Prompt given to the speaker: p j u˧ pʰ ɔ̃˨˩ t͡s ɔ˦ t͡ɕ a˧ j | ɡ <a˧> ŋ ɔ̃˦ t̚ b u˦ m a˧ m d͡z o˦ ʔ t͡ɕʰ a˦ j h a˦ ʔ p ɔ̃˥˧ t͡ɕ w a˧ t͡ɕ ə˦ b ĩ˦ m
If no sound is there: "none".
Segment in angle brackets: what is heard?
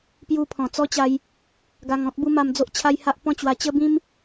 a˧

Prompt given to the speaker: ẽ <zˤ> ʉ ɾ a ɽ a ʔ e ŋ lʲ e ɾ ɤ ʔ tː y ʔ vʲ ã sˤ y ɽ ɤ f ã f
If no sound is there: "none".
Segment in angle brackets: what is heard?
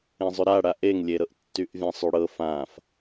zˤ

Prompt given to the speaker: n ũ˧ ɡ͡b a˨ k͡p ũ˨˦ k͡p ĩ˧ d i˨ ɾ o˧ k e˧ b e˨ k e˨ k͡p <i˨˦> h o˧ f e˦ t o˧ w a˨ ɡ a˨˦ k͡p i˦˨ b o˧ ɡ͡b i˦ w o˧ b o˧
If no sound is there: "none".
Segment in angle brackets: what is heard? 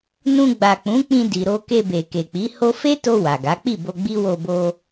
i˨˦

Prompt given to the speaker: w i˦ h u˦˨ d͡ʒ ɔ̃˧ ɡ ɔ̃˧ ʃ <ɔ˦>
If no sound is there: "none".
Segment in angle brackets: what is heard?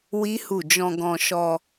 ɔ˧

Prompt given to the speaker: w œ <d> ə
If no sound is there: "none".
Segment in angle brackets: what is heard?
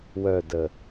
d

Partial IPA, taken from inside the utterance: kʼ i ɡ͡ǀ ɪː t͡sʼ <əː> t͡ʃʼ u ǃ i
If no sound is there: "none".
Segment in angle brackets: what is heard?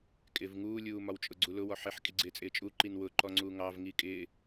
ɪː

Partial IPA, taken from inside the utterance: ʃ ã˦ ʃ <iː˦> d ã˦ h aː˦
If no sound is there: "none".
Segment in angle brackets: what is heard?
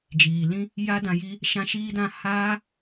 iː˦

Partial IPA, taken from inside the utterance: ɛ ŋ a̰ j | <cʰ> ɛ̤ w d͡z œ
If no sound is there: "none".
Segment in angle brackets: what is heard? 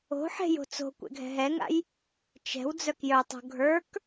t͡ʃ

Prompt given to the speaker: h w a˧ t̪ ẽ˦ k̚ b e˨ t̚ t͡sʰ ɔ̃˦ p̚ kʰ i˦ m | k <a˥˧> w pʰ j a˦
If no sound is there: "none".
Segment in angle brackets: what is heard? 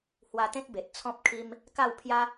a˥˧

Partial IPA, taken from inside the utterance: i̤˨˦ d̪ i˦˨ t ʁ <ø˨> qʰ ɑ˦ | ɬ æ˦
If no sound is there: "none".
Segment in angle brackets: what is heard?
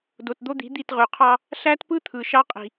ø˨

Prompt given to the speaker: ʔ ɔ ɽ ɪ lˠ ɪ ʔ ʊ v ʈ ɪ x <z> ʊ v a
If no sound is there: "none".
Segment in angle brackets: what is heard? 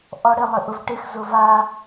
z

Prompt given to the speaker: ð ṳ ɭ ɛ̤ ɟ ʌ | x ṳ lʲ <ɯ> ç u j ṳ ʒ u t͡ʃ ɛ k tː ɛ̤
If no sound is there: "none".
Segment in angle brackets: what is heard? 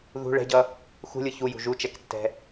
ɯ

